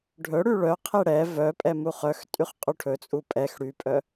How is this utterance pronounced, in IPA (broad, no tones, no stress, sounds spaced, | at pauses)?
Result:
ɖʱ ɵ ɽ y ɭ œ qʰ e ɽ ɛ v œ pʼ ɛ m u χ œ x tʼ y χ qʼ u ʈʰ ɵ t͡sʼ u pʼ ɛ x ɽ y pʼ œ